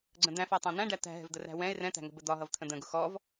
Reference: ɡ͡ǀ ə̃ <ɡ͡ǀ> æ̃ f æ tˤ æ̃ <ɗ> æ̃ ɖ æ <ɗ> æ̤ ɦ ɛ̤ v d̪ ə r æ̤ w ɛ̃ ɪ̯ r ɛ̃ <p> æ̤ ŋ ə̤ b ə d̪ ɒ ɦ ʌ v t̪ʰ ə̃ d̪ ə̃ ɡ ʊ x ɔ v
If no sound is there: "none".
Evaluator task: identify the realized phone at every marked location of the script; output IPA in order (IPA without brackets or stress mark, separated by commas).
d̪, n̪, t̪, t̪